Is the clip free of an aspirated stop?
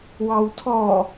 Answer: no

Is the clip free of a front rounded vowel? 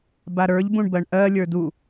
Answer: yes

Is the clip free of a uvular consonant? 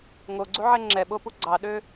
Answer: yes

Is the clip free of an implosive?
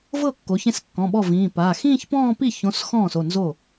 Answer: no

